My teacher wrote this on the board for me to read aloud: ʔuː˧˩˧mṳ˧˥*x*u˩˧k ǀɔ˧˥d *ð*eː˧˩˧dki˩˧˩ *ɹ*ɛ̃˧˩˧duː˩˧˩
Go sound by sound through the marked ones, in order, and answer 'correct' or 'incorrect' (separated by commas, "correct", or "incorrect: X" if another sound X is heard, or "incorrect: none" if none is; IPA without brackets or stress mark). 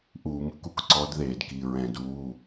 incorrect: k, correct, correct